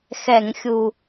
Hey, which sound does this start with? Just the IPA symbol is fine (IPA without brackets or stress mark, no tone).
x